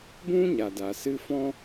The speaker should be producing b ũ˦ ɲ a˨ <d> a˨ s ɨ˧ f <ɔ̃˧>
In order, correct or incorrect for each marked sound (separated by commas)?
correct, incorrect